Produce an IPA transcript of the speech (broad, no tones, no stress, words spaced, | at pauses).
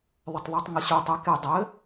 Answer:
ðˤɘtˤðˤə˞tˤŋɐɕu tˤeke dˤɘ